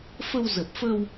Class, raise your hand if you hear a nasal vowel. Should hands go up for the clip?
no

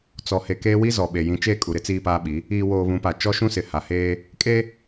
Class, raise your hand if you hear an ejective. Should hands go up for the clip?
yes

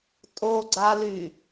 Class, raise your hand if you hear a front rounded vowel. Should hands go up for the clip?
yes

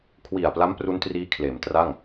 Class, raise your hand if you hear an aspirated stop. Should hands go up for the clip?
yes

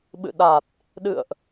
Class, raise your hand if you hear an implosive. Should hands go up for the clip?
yes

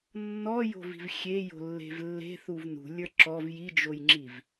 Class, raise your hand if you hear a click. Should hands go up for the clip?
yes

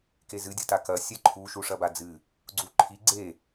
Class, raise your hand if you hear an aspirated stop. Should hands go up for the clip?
yes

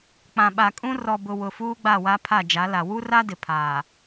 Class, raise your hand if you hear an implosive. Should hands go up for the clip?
yes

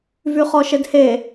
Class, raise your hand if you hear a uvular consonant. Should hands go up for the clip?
yes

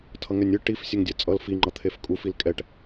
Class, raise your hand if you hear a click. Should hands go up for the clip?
yes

